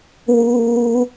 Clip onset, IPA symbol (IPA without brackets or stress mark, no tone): w